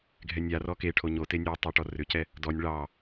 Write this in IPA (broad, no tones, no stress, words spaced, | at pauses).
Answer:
ɡʱɛnʲarɔ keʈʰo ɲote nʲo tˤeʈɔrʏcɛ | dɔnʲ ɭɑ